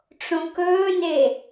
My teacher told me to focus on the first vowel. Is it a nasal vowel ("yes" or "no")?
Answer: yes